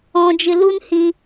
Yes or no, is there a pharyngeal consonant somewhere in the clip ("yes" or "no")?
no